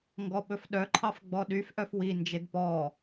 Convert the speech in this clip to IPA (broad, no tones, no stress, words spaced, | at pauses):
ŋɡɔɓɵfɗœǃʰɑf ɡ͡bɔɗyfʔœf wind͡ʒed pɔ